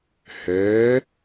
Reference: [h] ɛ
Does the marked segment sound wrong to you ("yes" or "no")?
no